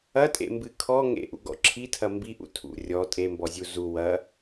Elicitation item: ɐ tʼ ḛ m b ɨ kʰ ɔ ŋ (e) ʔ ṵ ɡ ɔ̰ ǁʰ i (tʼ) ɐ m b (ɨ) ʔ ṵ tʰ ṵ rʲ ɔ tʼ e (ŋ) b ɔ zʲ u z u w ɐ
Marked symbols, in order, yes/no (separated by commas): no, no, no, no